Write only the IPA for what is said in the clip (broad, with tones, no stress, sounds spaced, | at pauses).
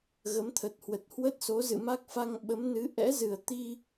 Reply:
ɣ ə˨˦ m t̪ʰ ə˨˩ t̚ h w ə˨˩ t̚ h w ə˦˥ t̚ s o˨˦ z ɨ̰˧˨ m a˦˥ k̚ f a˧ ŋ ɓ ə˨˦ m n ɨ˨˦ ʔ ɛ̰˧˥ z ɨ˨˩ ə̯ t̪ i˧